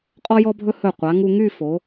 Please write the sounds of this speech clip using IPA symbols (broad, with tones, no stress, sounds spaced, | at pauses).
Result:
qʼ ɔ˥ j ɔ˥ bʱ ɵ˥ h ɵ˧˩ qʷ a˩˧ ŋ u˧ ŋ y˥˧ f o˩˧